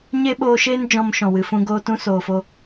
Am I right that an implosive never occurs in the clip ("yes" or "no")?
no